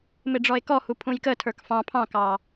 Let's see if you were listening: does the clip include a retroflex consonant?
yes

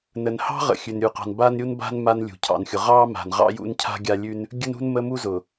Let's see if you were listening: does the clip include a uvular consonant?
yes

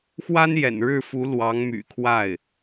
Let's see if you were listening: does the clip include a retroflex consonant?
yes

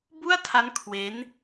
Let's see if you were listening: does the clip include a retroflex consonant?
no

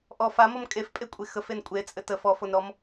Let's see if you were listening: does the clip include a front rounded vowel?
no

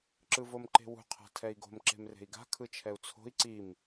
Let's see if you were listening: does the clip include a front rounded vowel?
no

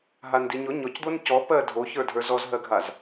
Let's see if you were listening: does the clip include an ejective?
no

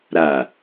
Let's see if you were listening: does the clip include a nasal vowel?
no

